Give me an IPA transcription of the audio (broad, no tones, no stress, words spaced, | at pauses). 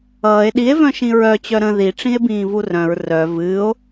ʌːe̯ ɗie̯vœ̃ ʃĩɹœ t͡ɕœɾə̃ ðiʈ͡ʂĩe̯ bĩːvurœ̃ɹ rœ vɨːo̯